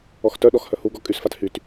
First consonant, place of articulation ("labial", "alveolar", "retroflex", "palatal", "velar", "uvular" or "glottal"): velar